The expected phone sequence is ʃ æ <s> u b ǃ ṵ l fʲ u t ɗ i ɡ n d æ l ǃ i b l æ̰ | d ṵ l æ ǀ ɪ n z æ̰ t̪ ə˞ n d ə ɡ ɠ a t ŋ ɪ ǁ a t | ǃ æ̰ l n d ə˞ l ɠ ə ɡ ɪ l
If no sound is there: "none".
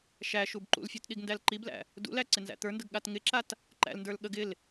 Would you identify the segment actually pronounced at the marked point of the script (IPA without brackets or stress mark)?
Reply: ʃ